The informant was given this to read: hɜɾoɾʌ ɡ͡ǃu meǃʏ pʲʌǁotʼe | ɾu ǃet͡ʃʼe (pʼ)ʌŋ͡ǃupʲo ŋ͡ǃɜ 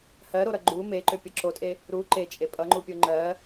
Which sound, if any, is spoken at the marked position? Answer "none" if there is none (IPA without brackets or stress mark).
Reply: pʼ